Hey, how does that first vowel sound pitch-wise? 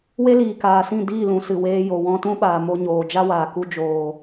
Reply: high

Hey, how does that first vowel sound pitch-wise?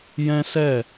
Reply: high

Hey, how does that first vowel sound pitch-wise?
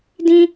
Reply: high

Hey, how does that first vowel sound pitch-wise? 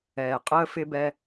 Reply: low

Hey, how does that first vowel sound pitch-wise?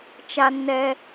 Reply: high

